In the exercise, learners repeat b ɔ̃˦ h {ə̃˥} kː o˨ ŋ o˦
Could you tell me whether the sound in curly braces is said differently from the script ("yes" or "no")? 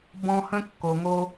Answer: no